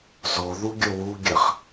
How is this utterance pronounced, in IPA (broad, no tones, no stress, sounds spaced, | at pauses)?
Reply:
z o ð u ɡʲ o w u ɡʲ ə χ